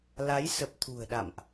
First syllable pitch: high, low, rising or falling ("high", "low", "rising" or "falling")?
rising